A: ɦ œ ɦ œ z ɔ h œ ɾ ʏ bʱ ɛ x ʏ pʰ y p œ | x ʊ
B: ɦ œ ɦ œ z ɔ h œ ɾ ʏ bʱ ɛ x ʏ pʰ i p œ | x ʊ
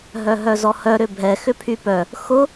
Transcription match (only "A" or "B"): A